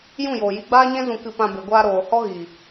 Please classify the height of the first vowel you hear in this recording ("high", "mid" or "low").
high